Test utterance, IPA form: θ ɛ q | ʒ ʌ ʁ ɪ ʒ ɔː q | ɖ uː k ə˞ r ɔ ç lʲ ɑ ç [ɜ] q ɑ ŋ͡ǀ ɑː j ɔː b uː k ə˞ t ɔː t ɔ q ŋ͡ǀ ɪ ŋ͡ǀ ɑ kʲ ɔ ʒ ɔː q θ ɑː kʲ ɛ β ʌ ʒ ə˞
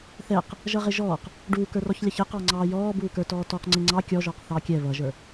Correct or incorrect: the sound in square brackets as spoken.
incorrect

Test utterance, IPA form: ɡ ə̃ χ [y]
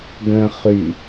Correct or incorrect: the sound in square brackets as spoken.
correct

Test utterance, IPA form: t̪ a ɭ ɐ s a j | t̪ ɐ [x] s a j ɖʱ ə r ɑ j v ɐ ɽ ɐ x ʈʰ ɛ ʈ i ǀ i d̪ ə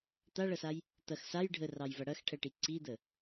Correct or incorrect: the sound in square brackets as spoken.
correct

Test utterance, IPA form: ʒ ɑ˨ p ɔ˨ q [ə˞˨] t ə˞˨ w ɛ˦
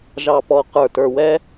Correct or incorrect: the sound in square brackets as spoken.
correct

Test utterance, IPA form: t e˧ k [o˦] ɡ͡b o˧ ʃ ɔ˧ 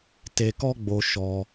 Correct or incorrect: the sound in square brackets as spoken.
incorrect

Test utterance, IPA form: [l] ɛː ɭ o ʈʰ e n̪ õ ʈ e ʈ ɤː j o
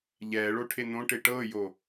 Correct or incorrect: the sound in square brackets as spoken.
incorrect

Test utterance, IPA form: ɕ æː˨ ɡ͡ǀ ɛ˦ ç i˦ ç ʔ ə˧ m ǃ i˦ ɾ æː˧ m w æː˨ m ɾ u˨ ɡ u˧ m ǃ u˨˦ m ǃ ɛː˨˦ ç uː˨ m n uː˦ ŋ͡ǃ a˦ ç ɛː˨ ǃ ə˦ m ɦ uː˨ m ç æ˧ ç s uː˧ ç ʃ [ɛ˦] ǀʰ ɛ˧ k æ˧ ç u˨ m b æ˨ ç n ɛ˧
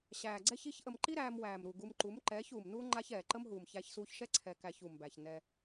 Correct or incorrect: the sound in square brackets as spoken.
correct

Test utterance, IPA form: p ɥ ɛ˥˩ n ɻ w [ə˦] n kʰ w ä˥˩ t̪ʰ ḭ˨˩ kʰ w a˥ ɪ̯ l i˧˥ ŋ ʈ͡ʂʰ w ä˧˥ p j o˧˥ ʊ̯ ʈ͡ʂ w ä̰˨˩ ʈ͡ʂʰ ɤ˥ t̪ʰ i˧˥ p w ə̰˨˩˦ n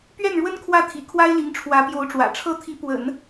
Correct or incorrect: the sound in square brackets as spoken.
incorrect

